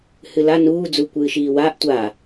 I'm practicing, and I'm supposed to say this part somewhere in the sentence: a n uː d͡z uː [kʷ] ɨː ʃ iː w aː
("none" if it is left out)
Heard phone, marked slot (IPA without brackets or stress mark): kʷ